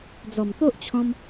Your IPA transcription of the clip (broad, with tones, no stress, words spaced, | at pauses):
d͡zɔ˨˩mt̪o˦ʔt͡ɕʰɔ̃˧m